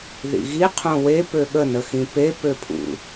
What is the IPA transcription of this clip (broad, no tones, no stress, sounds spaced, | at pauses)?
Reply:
ð ḭ ɣ i qʰ õ w e p ø ɠ ə n ə x ĩ p e p ø pʰ ṵ